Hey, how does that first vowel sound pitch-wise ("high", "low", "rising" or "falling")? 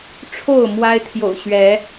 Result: falling